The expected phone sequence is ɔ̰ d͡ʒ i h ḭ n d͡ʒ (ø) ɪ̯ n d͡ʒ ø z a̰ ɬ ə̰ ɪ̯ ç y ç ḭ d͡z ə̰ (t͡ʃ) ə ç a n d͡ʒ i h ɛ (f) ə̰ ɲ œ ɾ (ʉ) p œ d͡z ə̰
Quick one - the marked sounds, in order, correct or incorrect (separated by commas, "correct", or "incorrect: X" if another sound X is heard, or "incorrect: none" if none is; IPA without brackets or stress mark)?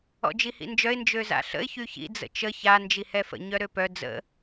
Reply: incorrect: œ, correct, correct, incorrect: ø